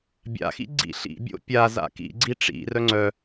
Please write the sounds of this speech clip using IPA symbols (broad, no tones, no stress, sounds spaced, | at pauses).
bʲ a̰ x ḭ ɡ͡ǀ ḭ ɬ ḭ bʲ o̰ pʲ a z a̰ k ḭ ɡ͡ǀ i ʈ͡ʂ ḭ r œ ŋ͡ǀ œ